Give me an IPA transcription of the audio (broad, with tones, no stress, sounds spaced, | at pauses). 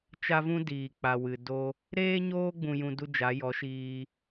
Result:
t͡ʃ a˦ v ũ˦ d iː˨ k͡p a˨ w ɨ˨ d o˧ | ɾ eː˦ ɲ oː˦ ɡ͡b ũ˧ j ũ˧ d u˦ d͡ʒ a˨˦ j ɔ˨˦ ʃ iː˧